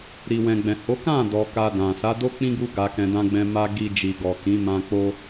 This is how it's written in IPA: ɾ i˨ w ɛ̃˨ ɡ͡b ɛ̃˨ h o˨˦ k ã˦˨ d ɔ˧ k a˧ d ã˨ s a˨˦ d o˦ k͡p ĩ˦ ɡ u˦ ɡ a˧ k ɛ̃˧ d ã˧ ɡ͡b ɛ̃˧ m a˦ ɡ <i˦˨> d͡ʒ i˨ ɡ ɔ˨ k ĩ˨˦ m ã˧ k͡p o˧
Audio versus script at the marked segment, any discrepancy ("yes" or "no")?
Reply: yes